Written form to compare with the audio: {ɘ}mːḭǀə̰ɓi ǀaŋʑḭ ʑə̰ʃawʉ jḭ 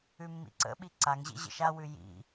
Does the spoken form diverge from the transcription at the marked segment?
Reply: yes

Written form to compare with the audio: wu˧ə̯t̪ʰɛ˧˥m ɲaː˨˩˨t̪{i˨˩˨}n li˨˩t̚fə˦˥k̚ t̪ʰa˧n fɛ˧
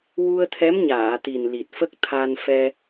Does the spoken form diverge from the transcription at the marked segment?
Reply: yes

